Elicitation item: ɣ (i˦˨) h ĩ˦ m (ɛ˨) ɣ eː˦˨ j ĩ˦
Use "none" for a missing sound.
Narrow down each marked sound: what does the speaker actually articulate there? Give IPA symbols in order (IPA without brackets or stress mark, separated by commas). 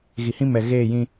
i˨, ɛ˨